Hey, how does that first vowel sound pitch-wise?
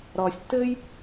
low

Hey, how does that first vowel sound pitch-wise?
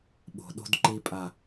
low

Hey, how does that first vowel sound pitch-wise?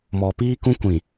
low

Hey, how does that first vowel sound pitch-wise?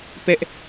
high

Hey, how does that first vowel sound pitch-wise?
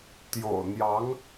low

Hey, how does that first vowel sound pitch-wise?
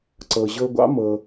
low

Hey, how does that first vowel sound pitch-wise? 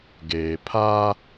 low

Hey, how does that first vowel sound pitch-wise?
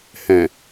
low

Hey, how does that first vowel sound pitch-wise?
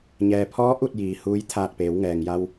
low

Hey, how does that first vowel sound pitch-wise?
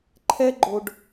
high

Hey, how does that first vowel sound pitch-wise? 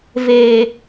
low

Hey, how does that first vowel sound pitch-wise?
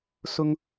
high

